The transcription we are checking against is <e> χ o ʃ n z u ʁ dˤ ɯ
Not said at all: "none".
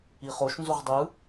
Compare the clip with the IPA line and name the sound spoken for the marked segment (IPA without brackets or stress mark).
i